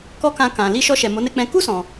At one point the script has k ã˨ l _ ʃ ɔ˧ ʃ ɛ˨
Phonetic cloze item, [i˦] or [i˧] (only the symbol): i˧